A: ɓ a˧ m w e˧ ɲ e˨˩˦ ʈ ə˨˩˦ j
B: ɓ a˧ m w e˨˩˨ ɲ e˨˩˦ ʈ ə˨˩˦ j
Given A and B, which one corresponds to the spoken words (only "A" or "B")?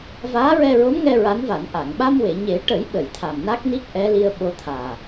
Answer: B